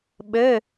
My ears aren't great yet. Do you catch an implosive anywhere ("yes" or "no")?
yes